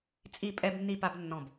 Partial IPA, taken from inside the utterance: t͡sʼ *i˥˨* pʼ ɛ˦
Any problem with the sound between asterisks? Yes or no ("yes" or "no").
no